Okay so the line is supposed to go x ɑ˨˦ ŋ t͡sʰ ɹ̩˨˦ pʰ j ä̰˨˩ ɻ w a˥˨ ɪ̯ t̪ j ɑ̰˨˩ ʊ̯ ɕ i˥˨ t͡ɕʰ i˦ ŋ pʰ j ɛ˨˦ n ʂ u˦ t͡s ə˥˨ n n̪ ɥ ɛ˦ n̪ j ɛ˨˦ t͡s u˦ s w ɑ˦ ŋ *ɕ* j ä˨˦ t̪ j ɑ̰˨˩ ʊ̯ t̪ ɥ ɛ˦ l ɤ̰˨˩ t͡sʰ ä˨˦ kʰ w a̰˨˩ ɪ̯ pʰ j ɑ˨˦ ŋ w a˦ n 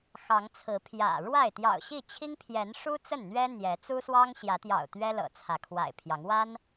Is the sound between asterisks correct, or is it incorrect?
correct